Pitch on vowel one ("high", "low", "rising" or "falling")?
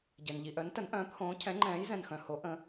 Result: low